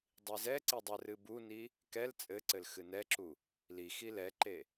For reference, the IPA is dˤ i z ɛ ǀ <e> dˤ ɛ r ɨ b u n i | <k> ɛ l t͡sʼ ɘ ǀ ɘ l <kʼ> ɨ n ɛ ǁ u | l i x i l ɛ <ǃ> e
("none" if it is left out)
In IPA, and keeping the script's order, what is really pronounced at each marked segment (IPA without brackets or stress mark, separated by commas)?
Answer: i, k, x, ǃ